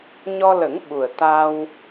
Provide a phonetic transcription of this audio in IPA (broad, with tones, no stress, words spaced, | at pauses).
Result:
ɲɔ˧lə˨˩˦ŋ ɓu˨˩ə̯ t̪a˧w